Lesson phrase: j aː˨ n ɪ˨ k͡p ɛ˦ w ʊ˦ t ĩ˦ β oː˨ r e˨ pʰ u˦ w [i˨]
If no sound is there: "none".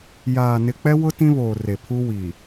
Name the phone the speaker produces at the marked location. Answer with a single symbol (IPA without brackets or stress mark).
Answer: i˨